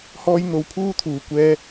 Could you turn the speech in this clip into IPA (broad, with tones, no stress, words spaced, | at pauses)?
hɔː˥j n̪o˧wpʰuː˥t̪ʰuː˨ kʷɛː˧